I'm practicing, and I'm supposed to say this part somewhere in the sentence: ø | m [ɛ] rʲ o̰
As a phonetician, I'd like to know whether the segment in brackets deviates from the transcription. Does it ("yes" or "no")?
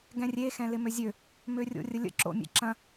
yes